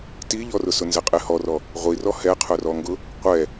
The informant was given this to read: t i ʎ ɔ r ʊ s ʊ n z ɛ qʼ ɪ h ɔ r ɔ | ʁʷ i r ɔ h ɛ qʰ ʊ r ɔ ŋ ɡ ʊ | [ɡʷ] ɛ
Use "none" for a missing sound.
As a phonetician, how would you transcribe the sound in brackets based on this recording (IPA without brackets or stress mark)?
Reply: qʷ